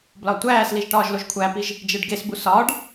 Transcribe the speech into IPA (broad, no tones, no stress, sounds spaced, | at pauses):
b l ɒ tʷ æː s l i ʒ ʈ ɒː ʒ l o ʒ kʷʰ æ p i ʒ | d͡ʒ e ɖ ɡ e s b u s ɒ ɖ